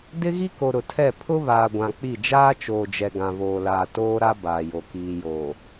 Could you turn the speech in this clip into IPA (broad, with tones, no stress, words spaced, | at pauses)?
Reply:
dɪ˦ɣi˦ko˨ ɾʊ˨tʰɛ˦˨ pʰʊ˦βaː˨ɡʷã˨ k͡pi˦˨ d͡ʒaː˦t͡ʃoː˨d͡ʒɛ˨ ɡã˨βoː˨laː˨ toː˦ɾa˦ baː˨jo˨ kiː˨joː˨